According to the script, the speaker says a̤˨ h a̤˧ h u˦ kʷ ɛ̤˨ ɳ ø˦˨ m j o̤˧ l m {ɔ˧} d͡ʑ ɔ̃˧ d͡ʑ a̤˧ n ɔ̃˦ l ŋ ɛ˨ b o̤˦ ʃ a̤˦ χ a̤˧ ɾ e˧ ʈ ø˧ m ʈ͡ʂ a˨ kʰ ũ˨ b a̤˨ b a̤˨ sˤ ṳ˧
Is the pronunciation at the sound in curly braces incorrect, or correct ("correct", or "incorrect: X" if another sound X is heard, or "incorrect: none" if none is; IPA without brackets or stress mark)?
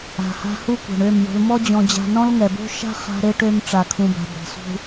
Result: incorrect: ɔ˦